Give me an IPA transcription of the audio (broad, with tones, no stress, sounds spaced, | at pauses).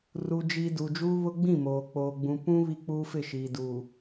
r u˨ d͡ʒ i˨ d u˨ d͡ʒ uː˦ β ʊ˦ ɡ͡b ĩ˦˨ m oː˨ k͡p oː˨ ɡ͡b ũ˨ p ũ˦ β i˦ k͡p uː˦ f ɪ˦˨ ʃ iː˨ d u˨